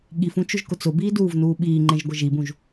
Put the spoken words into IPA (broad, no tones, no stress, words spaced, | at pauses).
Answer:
ɠifũ t͡ʃʊʒkʊt͡sʊbiː duːvnuːɓiːŋ͡ǃẽʒ ɡʷɪʒibũʒ